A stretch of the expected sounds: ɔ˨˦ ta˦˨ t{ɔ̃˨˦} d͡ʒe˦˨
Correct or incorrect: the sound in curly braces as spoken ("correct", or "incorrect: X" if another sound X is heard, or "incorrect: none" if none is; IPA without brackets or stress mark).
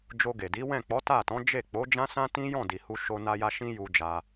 correct